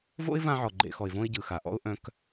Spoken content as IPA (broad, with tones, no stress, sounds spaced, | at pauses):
v o̰˦ ɪ̯ v ã˦ ʕ ɔ˨ ɡ͡ǃ ḛ˨˦ x ɔ˨ ɪ̯ v õ˦ ɪ̯ ɟ ɯ˨ x a˨ ʔ ɔ̰˦ ʊ̯ ʔ œ̃˨ k